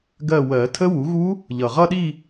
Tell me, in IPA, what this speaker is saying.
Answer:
ɡ ɜ˦˨ w ɜ˨˩˦ tʰ ə˦˥ w u˩˥ ɣ u˦˥ | ʎ ʌ˩ ʁ ʌ˦˨ ɗ i˦˨

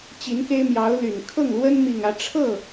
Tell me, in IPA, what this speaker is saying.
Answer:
t͡ɕ i˧˥ n k e˥ ɪ̯ m j ɑ˧˥ ʊ̯ l y˨˩ n kʰ ɤ˥˩ ŋ l w ə˥ n m i˥˧ ŋ ä˥˧ ʈ͡ʂʰ ɤ˥˩

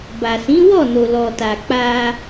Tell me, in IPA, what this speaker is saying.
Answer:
b a˨ s ĩ˨˦ w ɔ˦˨ n o˨ l ɔ˨ t a˨ k͡p a˧

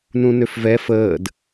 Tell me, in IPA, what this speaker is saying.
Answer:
n ũ n ø f v ɛ f əː d

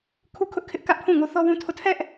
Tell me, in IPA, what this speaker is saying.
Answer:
kʰ u˦ kʰ ʊ˦ ʔ kʰ ɪ˦ ʔ k ä˦ ʔ pʰ ũ˦˨ ŋ o˦ θ ɔ˦ w ũ˦ tʰ o˦˨ tʰ ɛ˦ ʔ

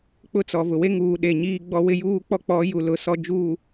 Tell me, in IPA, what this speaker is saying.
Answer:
k͡p ʊ˦ t͡s ɔ˨ v ʊ˨ w e˦ ŋ uː˨ ɗ e˨ ɲ iː˦ ɡ͡b ɔ˦ w ɪ˦ j uː˦ k͡p ɔ˦ k͡p ɔ˨˦ j u˨ l ʊ˨ s ɔ˨ d͡ʒ uː˨

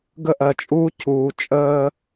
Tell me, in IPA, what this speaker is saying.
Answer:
ɡ ə˦ ʔ ɜ˨ t͡ʃʼ uː˦ cʰ uː˨ t͡ʃʼ əː˦

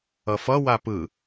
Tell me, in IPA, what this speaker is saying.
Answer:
ʌ f ʌ w a p ɯ

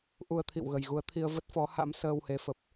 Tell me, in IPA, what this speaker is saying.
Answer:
ʔ u˧ ə̯ t̪ʰ ḭ˧˨ w ɣ ə˨˩ j ɣ u˨˦ ə̯ t̪ʰ i˧ ə̯ v ə˦˥ t̚ f ɔ˨˦ h a̰˧˥ m s əː˧ w h e˨˦ f ə˨˩ p̚

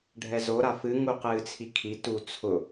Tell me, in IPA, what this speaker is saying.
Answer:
ɖʱ ɛ z o ɾ a f ɨ ŋ u q ɨː t͡sʰ i kʰ i t u t͡sʰ ʊ

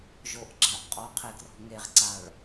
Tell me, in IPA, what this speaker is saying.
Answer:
ʒ o ʔ ɡ͡ǁ a ʔ qʼ ɔ qʰ e ɡ r ɔ̤ ŋ e ʁ ǀ a ɭ

